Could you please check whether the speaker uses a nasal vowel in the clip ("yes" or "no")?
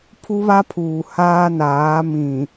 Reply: yes